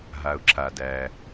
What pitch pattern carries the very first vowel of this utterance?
low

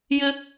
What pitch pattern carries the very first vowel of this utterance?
high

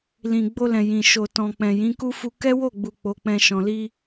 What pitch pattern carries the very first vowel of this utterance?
low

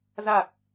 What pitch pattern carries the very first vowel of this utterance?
low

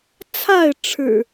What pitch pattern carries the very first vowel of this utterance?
falling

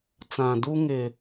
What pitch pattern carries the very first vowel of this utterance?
low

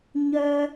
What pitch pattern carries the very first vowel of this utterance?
high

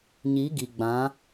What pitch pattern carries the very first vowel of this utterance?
rising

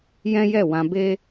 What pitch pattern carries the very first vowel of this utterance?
high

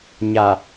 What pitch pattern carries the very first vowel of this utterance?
low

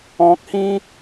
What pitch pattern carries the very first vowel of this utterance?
low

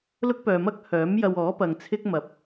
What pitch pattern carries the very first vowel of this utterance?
high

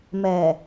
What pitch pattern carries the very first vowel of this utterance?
low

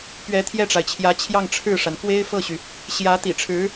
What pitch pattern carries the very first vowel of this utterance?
rising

